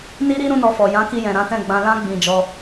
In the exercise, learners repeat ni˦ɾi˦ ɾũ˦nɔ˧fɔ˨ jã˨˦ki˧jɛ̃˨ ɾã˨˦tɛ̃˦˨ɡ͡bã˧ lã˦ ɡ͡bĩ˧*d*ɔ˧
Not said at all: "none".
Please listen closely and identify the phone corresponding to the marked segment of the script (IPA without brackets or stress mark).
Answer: d͡ʒ